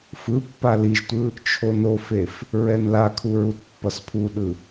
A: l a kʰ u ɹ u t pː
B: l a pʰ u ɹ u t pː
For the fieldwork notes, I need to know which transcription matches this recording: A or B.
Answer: A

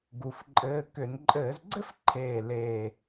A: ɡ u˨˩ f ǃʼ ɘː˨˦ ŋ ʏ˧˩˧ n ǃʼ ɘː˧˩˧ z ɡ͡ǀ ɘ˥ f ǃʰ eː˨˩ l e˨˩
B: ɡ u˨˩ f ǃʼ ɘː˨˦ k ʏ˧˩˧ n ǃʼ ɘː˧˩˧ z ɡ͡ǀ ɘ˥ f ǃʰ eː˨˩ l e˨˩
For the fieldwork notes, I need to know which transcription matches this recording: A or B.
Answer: B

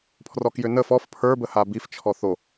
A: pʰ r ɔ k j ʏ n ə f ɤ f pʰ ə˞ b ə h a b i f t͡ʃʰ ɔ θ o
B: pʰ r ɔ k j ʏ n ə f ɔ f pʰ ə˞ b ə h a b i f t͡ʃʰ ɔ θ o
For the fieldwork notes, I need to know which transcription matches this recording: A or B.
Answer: B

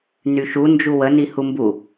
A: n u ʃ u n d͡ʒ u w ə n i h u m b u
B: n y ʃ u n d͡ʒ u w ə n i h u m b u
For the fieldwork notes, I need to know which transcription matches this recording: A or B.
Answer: B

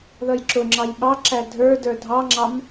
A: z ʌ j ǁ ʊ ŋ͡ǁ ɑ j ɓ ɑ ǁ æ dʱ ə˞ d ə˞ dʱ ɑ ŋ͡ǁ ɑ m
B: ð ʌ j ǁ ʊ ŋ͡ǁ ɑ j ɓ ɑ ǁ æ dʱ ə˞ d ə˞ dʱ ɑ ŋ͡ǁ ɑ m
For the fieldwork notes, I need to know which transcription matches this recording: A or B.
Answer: B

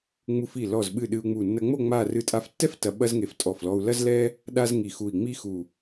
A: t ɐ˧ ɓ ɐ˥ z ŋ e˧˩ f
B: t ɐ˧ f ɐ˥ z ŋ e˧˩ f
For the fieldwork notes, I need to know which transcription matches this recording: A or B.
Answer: A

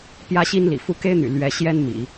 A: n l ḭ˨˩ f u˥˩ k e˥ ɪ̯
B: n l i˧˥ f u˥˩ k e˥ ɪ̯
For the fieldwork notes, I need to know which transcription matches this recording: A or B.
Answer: A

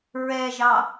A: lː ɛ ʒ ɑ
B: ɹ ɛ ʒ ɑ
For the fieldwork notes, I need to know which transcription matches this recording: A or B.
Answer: B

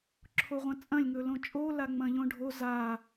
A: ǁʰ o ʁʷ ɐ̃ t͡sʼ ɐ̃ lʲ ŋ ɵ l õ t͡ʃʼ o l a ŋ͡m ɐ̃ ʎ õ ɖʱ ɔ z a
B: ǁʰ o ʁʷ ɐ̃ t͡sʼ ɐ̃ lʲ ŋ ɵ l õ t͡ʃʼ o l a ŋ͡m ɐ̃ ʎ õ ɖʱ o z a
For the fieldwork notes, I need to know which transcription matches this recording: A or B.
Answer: B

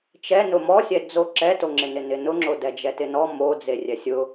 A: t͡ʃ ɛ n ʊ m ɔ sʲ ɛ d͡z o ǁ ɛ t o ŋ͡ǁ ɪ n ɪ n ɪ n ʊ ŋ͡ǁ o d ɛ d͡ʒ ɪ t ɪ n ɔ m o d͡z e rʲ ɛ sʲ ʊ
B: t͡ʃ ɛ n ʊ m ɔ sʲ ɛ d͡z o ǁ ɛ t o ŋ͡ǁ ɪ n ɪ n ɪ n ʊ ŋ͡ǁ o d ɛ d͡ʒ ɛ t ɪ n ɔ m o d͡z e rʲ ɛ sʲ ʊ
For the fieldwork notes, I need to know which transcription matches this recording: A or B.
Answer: B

